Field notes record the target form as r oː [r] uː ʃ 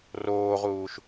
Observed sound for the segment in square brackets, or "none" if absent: ʁ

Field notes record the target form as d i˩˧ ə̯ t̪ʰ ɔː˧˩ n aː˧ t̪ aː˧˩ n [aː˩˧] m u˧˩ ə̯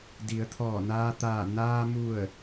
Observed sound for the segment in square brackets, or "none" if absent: aː˧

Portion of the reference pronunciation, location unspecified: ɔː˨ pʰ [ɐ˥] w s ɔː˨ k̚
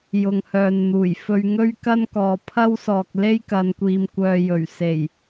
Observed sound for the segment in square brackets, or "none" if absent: ɐ˥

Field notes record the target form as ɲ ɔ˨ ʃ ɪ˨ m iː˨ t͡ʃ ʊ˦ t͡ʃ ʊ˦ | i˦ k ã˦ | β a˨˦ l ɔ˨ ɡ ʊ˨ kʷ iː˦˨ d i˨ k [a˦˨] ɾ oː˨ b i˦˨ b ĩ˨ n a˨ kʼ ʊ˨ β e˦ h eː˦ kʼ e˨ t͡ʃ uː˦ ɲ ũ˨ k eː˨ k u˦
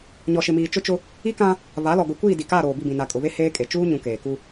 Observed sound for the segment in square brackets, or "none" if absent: a˦˨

